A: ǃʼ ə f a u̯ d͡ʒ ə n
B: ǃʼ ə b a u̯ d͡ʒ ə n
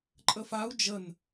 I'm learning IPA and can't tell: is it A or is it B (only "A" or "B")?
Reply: A